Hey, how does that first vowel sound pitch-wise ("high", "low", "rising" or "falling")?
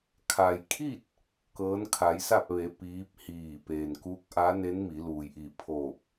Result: low